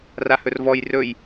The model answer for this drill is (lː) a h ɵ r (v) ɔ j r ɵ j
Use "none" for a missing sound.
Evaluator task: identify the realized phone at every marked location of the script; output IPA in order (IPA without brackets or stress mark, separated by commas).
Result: r, v